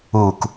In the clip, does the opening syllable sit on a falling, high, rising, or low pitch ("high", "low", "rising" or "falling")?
low